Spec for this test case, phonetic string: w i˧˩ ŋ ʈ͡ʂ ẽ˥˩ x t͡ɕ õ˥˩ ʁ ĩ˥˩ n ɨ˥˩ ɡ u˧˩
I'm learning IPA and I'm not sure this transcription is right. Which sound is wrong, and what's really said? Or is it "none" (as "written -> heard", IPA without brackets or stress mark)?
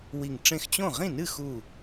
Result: ɡ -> x